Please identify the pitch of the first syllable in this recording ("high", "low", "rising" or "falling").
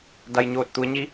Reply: low